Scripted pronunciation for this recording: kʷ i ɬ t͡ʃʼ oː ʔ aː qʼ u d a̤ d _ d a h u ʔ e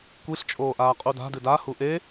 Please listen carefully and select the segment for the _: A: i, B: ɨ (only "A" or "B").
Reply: B